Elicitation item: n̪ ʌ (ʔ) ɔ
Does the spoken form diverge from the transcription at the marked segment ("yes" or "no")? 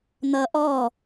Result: no